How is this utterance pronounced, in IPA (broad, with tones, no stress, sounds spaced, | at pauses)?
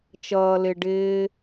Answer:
t͡ʃ ʌː˨ l ɪ˨ ɖ ɪː˧